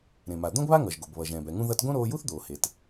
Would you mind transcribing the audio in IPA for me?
ɾẽ˩ma˩ d̪õ˥ɡβa˥ŋʌ˩ʒ ɡo˩bβʌ˩ʒɛ̃ː˩b ɛ˩ŋũ˧ ðʌ˧tɡõ˥ ɾoː˧ju˥θd̪oː˩ he˩t

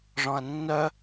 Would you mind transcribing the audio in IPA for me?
ʐɔ̃ɐ̯nːœ

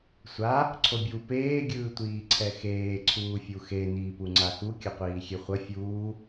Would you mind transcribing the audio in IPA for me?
sʷa | ǀʰobʲu peː ɡʲɯːtʷiːǀʰɛxeː ǀʰuːfʲuxe niːpuŋ͡ǀaxu kʲʌqʷiːxʲeχʷʌ fʲuː

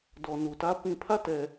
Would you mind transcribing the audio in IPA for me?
dɔ˨nu˨tä˦ pĩ˨pʰä˦˨tɛ˨

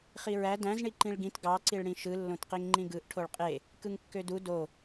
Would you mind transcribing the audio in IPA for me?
χiɹæ dæ̃z ɳiǃĩɭɡĩt ɡɑ ǀiɭɽĩʃɯ lːõtqiŋŋ͡ǃĩɡɯʔ ʈʰoɭqʼe | kɯŋkːødu do

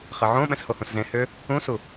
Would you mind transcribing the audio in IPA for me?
χɛʕõ ɓɛ̃shohũszẽ hʏ | ũsu

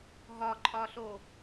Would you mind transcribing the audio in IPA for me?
ɦɒǃʼɒɬo

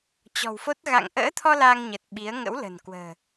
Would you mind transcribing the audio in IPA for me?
t͡ɕɔ̤˨˩wfo˦˥t̚ ɣa̰˧˨ŋʔə̰ː˧˥t̪ʰɔ˧ la˧ŋɲə˨˩t̚ ɓi˨˦ə̯ ŋə̰˧˥wlə̤˨˩nkwə̤ː˨˩

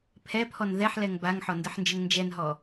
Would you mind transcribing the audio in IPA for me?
pʰɛpʰɔn ðɛħlɛŋ baŋħɔndəħnd͡ʒəŋ nd͡ʒɛnɦɔ

